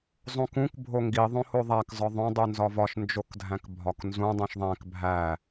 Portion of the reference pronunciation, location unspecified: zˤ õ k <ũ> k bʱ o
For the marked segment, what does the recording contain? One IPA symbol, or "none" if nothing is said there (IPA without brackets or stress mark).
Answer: ũ